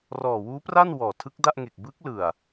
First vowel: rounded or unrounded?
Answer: rounded